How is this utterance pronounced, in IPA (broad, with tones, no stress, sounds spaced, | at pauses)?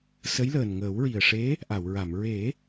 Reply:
s ə˧˥ j l əː˨˩ n ŋ əː˨˩˦ w ɹ i˨˩ ə̯ ʂ e˧˥ | ʔ a˨˩˨ w ɹ a˨˩˨ m ɹ e˨˩˦